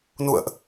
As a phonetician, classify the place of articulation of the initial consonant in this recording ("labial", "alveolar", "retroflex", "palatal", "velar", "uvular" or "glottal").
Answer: alveolar